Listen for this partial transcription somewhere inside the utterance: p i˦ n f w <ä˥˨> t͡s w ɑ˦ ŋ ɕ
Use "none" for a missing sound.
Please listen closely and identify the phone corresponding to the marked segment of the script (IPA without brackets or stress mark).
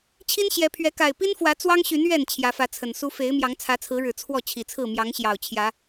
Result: ä˨˦